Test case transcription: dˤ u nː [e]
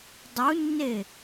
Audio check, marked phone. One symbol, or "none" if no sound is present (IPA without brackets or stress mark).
e